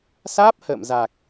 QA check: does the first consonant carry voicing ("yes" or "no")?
no